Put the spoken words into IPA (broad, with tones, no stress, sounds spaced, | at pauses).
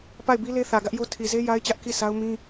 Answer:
p a˦˨ ɪ̯ b i˦ l e˦ θ ä˨ ɡ ä˦ ʔ j o˦ tʰ i˨ z e˦ j a˦ ɪ̯ t͡ɕ ä˦ ʔ k i˦˨ sʰ a˦ ʊ̯ m ĩ˦